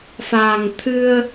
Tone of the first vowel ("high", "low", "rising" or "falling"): low